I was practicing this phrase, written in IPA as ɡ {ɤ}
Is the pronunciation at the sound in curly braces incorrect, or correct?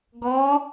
incorrect